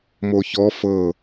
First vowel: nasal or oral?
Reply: oral